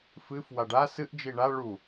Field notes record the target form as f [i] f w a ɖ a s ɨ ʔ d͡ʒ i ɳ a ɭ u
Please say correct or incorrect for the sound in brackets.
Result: incorrect: ɨ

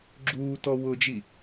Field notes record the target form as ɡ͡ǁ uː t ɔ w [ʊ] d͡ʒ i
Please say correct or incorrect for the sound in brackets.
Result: correct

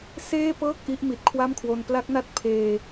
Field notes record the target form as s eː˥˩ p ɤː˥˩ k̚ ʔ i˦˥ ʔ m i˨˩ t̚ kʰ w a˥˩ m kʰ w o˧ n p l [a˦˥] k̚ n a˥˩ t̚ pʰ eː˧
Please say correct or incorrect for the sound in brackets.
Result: correct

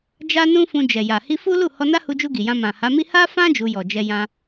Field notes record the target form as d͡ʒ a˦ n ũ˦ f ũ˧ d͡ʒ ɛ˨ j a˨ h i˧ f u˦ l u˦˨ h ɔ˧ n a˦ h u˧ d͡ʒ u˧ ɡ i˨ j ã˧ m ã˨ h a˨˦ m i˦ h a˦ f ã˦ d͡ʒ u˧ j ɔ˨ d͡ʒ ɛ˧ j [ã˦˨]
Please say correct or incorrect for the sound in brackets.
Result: incorrect: ã˧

